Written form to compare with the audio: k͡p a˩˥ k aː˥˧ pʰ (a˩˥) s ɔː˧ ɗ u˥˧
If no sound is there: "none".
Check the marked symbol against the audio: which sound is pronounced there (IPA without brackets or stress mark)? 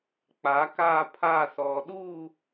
a˥˧